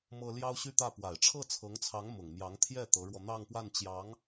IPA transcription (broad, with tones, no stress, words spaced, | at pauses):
mɤ˥ ljɑ˥ʊ̯ɕy˥˧t̪ä˥˩ pwa˨˩ɪ̯ʈ͡ʂʰɤ˥˩t͡sʰɤ˧˥ŋt͡sʰɑ˧˥ŋ mʊ˨˩ŋmjɑ˧˥ŋt̪ʰjɛ˥˩ t̪ɤ˧˥ɻwɔ˧n̪ɑ˥˧ŋpwa˥˩n t͡ɕjɑ˧˥ŋ